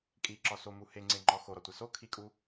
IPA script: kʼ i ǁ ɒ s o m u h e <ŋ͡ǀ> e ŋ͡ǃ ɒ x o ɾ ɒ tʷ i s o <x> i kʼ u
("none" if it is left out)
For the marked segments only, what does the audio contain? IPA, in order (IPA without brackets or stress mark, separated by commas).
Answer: ŋ͡ǀ, kʰ